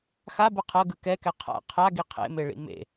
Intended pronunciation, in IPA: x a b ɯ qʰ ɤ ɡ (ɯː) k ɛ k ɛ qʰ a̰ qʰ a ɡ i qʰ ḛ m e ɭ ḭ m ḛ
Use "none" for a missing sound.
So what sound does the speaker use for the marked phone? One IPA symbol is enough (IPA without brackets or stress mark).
ɯ